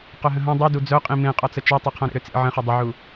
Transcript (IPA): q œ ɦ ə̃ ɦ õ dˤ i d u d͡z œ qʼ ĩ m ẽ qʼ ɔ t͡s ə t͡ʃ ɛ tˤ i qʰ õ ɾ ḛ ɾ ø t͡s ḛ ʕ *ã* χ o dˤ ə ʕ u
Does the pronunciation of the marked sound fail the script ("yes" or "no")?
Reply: yes